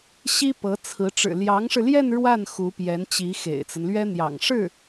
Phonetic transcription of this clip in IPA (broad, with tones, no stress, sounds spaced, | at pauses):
ɕ i˥ p ɤ˧˥ t͡sʰ ɹ̩˧˥ ʈ͡ʂ ɻ̩˨˩ l j ɑ˧˥ ŋ ʂ ɻ̩˧ l j ɛ˥˧ n ɻ w a˥˩ n x u˧˥ p j ɛ˧˥ n t͡ɕ i˧˥ x ḛ˨˩ ɪ̯ t͡s ə˦ n l ɥ ɛ˥ n̪ j ɑ̰˨˩ ŋ ʂ ɻ̩˥˩